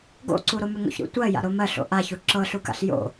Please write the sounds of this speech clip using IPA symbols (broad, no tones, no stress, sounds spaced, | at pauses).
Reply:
ɡ o̰ ǀ u ɾ o m ʏ ŋ o̰ ç ɾ ṵ tʷ ɜ j a̰ ɾ o m ɜ ɬ o̰ ʔ a ç u ǁ ɤ ɬ u k a̰ ɬ j o̰